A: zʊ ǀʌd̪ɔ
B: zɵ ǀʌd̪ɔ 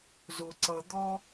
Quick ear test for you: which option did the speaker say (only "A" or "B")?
A